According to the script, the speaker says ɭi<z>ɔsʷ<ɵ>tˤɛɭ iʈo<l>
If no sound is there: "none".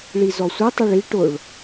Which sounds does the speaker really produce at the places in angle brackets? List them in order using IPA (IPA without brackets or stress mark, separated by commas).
z, ə, ɭ